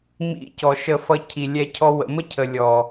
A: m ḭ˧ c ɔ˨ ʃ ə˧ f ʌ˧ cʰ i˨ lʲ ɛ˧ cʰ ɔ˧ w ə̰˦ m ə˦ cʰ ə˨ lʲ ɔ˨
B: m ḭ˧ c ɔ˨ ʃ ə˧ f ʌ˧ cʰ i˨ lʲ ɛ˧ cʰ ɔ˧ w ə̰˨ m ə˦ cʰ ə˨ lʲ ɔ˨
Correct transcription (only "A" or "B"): B